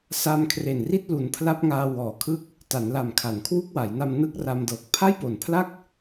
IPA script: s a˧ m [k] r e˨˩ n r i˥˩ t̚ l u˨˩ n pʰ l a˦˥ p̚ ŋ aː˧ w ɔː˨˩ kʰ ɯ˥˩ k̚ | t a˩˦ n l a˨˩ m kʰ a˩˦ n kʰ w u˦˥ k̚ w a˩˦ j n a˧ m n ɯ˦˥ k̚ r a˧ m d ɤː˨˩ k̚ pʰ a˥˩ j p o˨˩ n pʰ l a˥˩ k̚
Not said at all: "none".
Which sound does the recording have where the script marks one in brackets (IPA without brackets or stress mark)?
kʰ